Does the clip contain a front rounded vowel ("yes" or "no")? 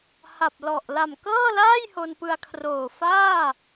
no